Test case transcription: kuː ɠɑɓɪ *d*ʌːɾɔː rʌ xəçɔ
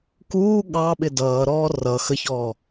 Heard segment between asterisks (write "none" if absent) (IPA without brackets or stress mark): d